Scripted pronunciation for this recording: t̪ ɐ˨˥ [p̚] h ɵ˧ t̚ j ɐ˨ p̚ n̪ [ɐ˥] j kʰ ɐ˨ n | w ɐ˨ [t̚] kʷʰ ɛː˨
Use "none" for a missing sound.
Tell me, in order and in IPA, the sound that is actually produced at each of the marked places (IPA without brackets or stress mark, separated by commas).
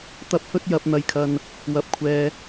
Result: p̚, ɐ˨, p̚